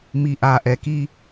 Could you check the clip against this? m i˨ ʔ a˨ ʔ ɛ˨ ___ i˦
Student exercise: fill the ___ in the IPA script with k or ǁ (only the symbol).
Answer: k